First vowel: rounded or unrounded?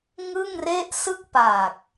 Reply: unrounded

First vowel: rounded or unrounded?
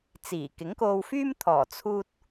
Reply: unrounded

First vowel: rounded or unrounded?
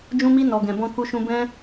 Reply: rounded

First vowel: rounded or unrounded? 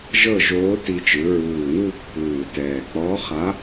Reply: unrounded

